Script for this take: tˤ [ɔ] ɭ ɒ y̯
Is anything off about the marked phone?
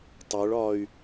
yes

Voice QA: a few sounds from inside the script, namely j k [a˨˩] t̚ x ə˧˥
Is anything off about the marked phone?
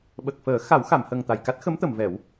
yes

